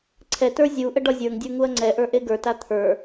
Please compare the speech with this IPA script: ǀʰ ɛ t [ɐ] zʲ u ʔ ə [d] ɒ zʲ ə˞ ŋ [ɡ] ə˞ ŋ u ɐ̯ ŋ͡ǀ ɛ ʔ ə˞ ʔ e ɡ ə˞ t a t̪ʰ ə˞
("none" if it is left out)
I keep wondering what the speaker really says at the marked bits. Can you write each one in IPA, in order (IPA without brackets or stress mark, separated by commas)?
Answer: ə˞, ɖ, dʲ